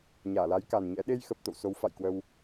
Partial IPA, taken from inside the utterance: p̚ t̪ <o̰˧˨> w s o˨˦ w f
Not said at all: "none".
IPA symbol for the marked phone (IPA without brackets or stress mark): o̰˧˨